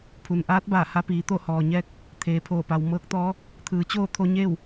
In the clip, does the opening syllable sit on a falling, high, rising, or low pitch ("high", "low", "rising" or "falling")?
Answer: low